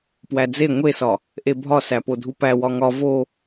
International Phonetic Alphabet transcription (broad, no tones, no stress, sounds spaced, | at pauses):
p w æ d͡z e ŋʷ e s ɒ | ʔ e bʱ ɒ s æ p o dʱ u p æ w ɒ ŋ ɒ v o